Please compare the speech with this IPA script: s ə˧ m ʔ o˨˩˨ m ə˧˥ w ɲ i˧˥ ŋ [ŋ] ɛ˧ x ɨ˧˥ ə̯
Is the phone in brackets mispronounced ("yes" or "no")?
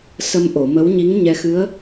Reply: yes